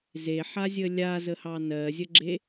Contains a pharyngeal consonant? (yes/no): yes